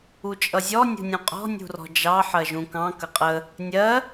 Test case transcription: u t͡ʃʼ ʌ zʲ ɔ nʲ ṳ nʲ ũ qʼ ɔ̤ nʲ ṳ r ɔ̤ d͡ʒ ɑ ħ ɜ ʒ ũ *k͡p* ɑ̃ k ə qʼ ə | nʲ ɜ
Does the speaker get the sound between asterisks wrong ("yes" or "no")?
yes